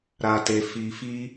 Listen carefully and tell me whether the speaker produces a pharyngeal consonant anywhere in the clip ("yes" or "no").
no